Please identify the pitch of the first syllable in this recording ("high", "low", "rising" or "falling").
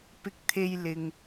high